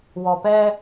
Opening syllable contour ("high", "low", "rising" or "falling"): low